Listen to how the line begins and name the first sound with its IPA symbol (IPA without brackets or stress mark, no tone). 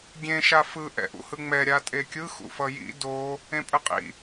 ɡʲ